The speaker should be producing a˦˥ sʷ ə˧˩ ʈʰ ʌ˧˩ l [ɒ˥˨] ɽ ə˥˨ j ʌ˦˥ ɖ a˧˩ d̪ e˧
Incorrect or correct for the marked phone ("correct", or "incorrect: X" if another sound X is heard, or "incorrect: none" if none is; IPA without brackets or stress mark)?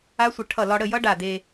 incorrect: ɒ˧